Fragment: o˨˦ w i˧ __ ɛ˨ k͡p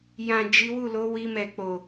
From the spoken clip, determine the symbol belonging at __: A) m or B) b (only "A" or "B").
A